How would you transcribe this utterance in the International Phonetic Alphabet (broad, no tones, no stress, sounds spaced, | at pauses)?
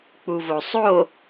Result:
k͡p u v o sˤ o